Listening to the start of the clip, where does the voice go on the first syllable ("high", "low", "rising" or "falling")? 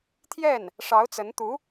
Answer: falling